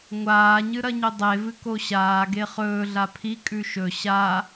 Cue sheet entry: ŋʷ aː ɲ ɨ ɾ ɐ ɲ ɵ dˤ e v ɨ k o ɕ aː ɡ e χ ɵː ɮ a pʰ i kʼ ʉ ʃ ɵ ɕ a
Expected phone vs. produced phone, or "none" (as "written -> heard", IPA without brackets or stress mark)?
none